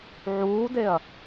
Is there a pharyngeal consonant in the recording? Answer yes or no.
yes